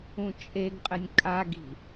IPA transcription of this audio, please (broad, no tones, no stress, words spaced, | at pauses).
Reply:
ũt͡ʃʼeɡqʼɘnʲ kʼaɡi̤